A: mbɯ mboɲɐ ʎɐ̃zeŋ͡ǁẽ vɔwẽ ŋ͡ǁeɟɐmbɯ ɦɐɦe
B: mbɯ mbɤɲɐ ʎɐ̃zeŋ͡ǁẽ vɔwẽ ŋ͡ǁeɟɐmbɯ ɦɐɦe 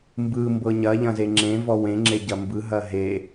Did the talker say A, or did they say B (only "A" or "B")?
B